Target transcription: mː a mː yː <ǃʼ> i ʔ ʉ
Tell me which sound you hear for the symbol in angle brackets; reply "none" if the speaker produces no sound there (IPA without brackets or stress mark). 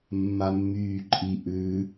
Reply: ǃʼ